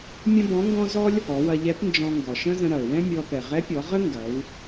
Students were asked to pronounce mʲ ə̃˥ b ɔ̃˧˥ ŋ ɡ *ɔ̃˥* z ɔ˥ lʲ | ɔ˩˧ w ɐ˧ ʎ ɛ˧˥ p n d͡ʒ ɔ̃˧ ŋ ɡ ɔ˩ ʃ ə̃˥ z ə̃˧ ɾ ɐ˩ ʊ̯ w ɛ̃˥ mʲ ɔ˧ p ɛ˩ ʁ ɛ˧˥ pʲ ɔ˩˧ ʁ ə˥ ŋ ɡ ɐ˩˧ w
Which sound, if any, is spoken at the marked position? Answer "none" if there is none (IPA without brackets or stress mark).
ɔ̃˥